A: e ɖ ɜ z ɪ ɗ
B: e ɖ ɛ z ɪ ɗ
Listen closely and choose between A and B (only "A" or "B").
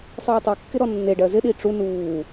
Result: A